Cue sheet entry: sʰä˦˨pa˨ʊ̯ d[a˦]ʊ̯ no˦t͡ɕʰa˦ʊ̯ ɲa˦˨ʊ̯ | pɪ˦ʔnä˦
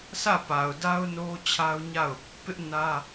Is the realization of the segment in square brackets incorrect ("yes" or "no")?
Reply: no